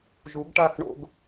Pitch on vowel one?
rising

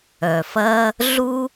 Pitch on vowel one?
low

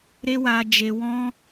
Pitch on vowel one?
high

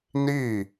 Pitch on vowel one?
falling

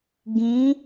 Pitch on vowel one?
rising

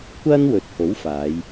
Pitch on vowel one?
high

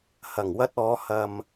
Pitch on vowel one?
low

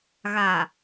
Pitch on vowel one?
low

